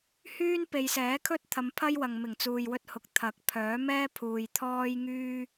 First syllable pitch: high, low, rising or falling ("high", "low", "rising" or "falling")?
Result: high